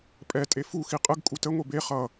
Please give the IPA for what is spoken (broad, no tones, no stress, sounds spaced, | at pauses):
pʼ ɛ tʼ e f u x i qʼ ə ɡ kʼ u t ə ŋʷ e b e χ ʌ